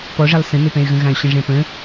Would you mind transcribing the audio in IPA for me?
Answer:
p ɔ ʐ ɛ lˠ s ə̃ n ʊ p ɛ̃ y̯ ɣ ə̃ ɣ ã y̯ ɕ ə̃ ʐ ɛ̃ p ə̃

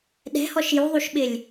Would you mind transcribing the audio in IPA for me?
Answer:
ɗ ɛ̤ h ɔ ʃ j u ðˤ u ʃ ɓ ɪ lʲ

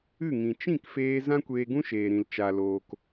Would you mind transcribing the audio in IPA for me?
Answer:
ɨ˦˨ ŋ ĩ˨ t͡ʃ ĩ˦˨ k f eː˧ z ã˦ kʷ eː˧ ɡ ũ˦ ʃ eː˨ ɾ ĩ˨ l t͡ʃ a˨ l oː˨ k

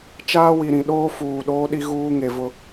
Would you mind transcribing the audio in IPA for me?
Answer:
t͡ʃ aː˦ w i˨ ɾ ĩ˨ ɗ oː˦ f uː˨ ɗ oː˦ ɗ i˦ ɣ uː˦ ŋ e˨ v ʊ˦

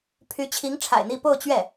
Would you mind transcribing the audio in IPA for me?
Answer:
pʰ y˧˥ t͡ɕʰ i˧˥ ŋ ʈ͡ʂʰ a̰˨˩ ɪ̯ n̪ i˥˧ p o˥˧ ʊ̯ t͡ɕ ɥ ɛ˥˩

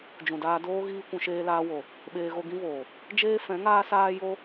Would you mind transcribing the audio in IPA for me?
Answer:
d͡ʒ ũ˨ d aː˧ d oː˦ ɣ iː˦ kʷ ũ˧ ʃ eː˦ l aː˦ w o˨ | ɓ eː˧ ɣ o˧ ɡ ĩ˦ v oː˨ | d͡ʒ eː˦ f ɛ̃˨˦ ŋ aː˦ s aː˦ j o˦

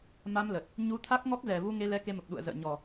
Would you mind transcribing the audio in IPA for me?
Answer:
m a˧ m l ə˨˩ t̚ | ɲ u˧ t̪ʰ a˦˥ k̚ ŋ ɔ˦˥ k̚ z ɛ˨˩ v u˧ ŋ e˧ l ɛ˨˦ k e˧ m ə˨˩ p̚ ɗ ṵ˧˨ ə̯ z ə̰ː˧˨ ɲ ɔ˨˩

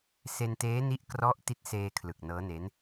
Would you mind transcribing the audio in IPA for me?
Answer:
s e˧ n t eː˦˥ n i˦˥ ʔ k r ɔ˦˥ ʔ t i˦˥ t̚ s eː˧ kʰ l ɯ˨˩ k̚ n ɤː˦˥ n e˦˥ n

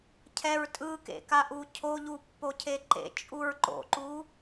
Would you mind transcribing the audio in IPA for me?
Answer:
cʰ ɛ ɹ tʼ ɯ k ḛ k a ʔ u cʰ o ʎ u pː o cʰ e ǃ ḛ t͡ʃʼ u ɹ ǃ o̰ ǃ u

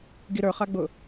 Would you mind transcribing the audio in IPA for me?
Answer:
ɡ i ɾ ə˞ χ a ɡ͡b ʊ

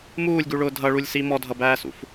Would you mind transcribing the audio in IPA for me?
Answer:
m uː lʲ ɡ u ɭ ʊː dʱ ʌ ɭ u lʲ s i m ɔ dʱ ʌ b æː s ṵ f

